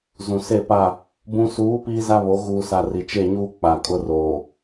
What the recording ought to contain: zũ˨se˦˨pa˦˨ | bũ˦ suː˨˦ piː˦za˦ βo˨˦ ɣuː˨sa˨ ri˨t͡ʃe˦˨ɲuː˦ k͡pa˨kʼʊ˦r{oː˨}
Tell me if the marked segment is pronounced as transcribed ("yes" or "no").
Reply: yes